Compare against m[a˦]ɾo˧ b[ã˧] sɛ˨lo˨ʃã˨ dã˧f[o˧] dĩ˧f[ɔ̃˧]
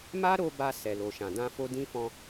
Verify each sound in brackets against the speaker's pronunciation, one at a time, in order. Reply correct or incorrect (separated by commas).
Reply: correct, incorrect, correct, correct